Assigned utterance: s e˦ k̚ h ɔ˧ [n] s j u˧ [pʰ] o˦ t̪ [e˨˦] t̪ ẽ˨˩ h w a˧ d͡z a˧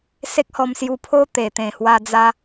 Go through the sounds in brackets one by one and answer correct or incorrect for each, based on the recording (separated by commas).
incorrect, correct, incorrect